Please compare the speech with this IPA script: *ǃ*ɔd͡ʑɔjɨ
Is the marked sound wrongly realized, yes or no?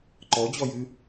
no